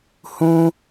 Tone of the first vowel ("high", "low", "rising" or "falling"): high